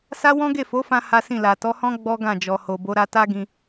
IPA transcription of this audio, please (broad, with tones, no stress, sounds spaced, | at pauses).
s a˦ w ɔ̃˦ ɡ e˦˨ f o˨˦ f ã˧ h a˦ s ĩ˦˨ l a˨ t ɔ˨˦ h ɔ̃˦ ɡ͡b ɔ˦ ɡ ã˦˨ d͡ʒ ɔ˨ h o˨ b o˨˦ ɾ a˧ t a˦ ɡ ĩ˧